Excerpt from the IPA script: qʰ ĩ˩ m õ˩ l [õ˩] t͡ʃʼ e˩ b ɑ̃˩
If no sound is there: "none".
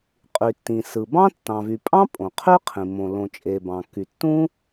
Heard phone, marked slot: õ˩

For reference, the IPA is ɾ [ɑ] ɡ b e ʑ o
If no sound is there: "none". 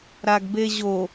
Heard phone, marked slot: a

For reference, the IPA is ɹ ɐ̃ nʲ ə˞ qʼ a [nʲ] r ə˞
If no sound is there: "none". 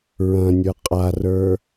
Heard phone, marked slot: none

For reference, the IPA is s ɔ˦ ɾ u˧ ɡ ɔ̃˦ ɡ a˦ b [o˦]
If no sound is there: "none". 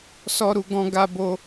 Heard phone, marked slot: o˦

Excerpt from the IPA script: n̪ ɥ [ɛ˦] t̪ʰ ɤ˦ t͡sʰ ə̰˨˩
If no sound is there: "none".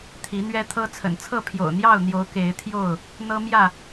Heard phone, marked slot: ɛ˦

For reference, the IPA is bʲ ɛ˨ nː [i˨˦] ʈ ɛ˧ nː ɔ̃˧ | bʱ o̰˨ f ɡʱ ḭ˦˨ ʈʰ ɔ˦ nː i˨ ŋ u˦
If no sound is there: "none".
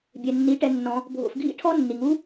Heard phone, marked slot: i˨˦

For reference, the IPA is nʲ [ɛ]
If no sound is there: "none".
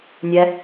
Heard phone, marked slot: ɛ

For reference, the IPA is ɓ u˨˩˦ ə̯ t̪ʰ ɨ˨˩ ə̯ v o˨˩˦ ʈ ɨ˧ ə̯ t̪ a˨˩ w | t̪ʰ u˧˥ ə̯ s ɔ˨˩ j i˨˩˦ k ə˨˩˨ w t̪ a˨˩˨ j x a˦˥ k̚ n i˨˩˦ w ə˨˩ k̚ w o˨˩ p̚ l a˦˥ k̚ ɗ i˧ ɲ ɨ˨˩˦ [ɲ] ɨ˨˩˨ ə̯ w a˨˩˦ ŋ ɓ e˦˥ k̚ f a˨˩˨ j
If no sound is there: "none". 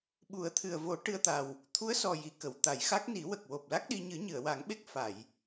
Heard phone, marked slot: ɲ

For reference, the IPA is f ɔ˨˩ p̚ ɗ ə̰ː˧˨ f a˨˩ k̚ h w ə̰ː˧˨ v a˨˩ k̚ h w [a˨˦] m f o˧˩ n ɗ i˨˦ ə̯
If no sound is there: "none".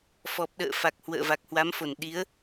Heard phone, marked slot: a˨˦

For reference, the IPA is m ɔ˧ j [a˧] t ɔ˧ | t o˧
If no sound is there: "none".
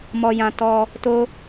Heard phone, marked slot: ã˧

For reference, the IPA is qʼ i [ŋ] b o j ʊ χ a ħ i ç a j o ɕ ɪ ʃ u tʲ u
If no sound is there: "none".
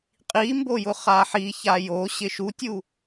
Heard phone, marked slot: m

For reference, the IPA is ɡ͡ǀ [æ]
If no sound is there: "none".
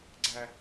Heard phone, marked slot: æ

